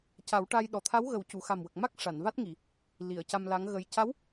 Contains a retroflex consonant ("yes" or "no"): yes